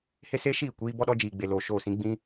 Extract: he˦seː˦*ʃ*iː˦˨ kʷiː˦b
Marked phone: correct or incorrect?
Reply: correct